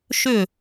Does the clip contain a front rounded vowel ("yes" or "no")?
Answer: yes